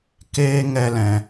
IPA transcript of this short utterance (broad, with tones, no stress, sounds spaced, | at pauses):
k eː˦ ŋ ɛ˦ l ɛ̃˧